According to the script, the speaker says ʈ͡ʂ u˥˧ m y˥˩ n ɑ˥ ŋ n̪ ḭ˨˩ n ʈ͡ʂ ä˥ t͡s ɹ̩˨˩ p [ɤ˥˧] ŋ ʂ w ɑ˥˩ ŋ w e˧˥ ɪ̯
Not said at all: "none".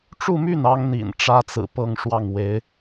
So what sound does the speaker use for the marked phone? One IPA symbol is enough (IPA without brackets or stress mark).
ɤ˥˧